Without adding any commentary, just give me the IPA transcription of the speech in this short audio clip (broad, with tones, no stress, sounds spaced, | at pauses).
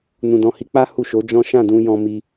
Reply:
n ũ˨ d ɔ̃˨ h i˧ k͡p a˦ h u˦˨ ʃ o˨˦ d͡ʒ ɔ̃˦ ʃ ã˦˨ d ũ˧ j ɔ̃˧ m i˧